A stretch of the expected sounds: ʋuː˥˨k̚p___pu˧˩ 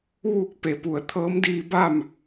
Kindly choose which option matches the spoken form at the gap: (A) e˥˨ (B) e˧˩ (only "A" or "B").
B